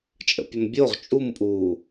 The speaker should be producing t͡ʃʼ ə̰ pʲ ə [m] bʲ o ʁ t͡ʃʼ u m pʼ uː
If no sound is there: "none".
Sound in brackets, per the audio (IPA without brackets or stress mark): m